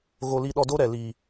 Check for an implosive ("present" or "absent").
present